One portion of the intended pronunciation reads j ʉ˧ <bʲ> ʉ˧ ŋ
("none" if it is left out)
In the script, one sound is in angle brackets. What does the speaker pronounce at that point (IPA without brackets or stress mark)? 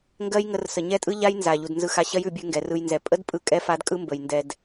bʲ